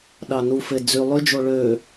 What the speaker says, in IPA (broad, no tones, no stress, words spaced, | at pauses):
ɗɑnufe d͡zy lˠyd͡ʒo ɭø